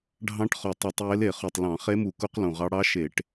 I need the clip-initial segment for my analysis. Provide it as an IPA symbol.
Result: ɖʱ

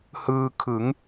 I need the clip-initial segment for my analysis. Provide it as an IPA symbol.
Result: h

